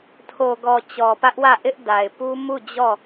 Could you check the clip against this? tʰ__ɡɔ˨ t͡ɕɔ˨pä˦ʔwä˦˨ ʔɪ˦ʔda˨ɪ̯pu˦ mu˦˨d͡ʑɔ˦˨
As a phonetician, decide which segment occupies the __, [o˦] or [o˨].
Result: o˨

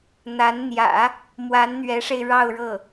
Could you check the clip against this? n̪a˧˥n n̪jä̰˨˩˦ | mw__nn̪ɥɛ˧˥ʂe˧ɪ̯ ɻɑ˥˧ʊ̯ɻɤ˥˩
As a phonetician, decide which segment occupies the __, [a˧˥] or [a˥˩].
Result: a˧˥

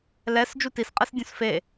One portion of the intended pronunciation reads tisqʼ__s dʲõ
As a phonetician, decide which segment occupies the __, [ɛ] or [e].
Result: ɛ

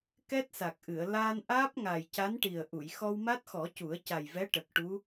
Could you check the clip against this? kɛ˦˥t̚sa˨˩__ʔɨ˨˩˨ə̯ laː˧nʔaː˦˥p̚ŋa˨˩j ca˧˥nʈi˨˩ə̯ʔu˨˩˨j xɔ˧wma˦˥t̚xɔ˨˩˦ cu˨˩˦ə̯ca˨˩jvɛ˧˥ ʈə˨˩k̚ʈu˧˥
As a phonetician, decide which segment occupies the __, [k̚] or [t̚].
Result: k̚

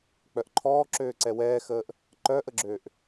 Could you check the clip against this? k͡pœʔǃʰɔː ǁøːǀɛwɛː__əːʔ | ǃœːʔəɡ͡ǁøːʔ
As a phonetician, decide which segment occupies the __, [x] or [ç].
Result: x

